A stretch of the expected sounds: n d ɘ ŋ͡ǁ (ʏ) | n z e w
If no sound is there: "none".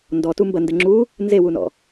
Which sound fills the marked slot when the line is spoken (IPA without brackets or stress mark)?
u